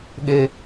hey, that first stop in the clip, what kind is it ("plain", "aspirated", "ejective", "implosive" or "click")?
implosive